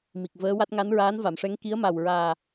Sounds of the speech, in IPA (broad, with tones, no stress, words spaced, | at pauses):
mi˨˩k̚vəː˧˥wa˦˥t̚ ŋa˧˥nɹaː˧˥nva˨˩˨mʂɛ˧˥ŋ ki˧˥ə̯ma˨˩wɹaː˨˩